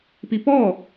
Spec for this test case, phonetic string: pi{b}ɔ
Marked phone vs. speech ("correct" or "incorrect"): incorrect